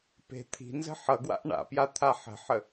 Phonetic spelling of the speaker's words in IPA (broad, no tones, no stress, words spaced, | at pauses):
pe̤ t̪ʰi̤nzə̤ ħʌɡwa̰ʔ ɳa̰pja t̪ʰaħə̤ħə